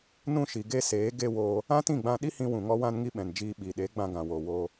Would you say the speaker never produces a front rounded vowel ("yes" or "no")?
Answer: yes